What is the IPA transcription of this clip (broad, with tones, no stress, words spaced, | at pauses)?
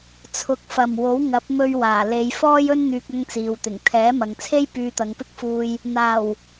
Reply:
t͡sʰʊ˨˥k̚fɐ˨˩m wo˨˥w ŋɐ˨˥p̚mɵ˧ɥ waː˨˩le˨˧j fɔː˥jɵ˥n n̪yː˧k̚ɐ˥ŋt͡siː˨wt̪ɪ˨˩ŋ t̪ʰɛː˨˥mɐ˨ŋt͡sʰe˥j pyː˧t̪ɐ˨˧ŋpɪ˥k̚fuː˧j | n̪aː˨˩w